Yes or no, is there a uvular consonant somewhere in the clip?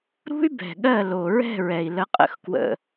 yes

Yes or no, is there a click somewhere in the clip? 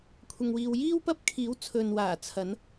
no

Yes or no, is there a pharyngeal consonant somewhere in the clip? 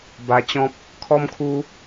no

